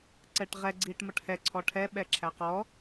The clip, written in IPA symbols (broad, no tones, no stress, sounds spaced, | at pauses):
ǀ ɛ ʈ ʁ ɛ ɡ͡ǀ iː ʈ m ʌ ʈ h ɛ ǀʰ ɔ ʈʰ ɛ ɓ ɛ ǁʰ æ q ɔ